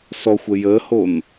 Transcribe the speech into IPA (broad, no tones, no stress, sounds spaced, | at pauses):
s ɔ xʷ ə j ə h o n